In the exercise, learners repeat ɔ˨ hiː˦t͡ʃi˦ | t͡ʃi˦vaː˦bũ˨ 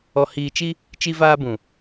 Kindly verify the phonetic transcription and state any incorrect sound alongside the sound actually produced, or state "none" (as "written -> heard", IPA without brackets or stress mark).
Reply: iː˦ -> iː˨